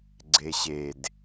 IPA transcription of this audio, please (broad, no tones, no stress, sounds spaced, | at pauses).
ɡ͡ǀ e ɕ e d